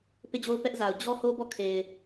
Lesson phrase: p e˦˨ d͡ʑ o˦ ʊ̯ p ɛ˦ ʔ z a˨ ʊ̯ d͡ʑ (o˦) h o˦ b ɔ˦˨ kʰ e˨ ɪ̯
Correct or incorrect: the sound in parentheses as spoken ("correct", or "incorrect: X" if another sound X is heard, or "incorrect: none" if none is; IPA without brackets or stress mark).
incorrect: ɔ˦